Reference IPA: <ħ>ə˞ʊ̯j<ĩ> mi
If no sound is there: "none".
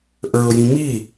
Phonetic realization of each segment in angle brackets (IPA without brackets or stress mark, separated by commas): ʔ, ĩ